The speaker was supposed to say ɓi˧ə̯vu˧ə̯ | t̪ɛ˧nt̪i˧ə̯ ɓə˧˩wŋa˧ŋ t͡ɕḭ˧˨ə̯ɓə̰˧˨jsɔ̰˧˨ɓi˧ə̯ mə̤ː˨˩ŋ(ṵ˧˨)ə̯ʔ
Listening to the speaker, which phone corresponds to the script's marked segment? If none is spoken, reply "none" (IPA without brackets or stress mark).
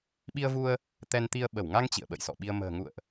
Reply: ṵ˧˨